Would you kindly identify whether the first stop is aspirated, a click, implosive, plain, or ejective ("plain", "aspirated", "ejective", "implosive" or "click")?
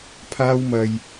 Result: aspirated